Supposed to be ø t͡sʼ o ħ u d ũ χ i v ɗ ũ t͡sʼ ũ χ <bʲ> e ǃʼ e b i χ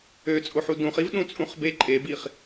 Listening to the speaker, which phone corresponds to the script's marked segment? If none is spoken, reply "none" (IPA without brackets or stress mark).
b